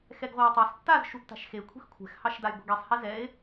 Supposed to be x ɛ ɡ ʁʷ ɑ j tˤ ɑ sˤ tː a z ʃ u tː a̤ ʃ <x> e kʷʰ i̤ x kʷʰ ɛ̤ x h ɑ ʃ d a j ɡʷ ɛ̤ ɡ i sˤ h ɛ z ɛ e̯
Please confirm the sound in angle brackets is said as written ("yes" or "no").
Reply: yes